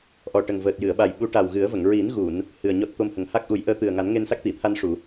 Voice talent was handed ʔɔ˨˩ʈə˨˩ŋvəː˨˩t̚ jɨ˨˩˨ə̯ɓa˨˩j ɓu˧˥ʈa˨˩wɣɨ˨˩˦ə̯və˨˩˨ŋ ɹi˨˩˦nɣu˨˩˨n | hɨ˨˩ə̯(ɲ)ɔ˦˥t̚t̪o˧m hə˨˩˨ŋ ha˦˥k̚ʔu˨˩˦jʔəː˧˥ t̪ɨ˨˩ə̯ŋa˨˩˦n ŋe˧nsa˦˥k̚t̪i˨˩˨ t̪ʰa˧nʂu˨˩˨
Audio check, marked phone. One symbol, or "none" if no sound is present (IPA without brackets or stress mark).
ɲ